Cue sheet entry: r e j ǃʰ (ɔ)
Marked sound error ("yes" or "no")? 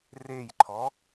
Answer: no